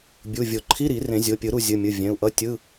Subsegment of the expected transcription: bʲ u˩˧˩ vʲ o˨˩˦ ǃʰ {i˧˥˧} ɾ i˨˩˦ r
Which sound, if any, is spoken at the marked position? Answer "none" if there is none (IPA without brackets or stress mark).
i˧˥˧